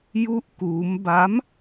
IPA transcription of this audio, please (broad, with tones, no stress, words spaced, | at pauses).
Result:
ju˥˩ʔkuː˦˥m ba˦˥m